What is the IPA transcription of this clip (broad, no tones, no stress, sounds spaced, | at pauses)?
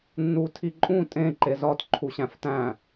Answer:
nː u tʰ i ǃʼ ũ tʼ ẽ ǃ e z ɒ t ǃʰ u ɕ æ̃ f t æ̃